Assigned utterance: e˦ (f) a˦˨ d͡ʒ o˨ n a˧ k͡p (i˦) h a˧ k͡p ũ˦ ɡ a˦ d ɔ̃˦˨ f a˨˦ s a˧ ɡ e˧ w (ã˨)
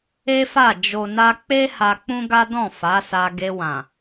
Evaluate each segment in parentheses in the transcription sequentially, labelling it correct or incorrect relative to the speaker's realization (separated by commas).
correct, incorrect, correct